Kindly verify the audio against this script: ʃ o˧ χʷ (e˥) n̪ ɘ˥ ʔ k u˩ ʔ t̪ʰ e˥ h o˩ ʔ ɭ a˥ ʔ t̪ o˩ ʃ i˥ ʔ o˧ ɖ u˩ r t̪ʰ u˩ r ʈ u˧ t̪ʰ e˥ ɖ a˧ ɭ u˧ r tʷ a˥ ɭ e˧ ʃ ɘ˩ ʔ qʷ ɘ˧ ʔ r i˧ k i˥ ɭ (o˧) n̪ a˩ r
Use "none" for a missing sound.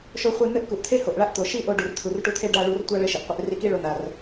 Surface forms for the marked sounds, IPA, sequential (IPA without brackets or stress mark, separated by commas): e˧, o˧